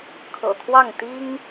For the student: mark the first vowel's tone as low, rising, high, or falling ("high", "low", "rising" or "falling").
low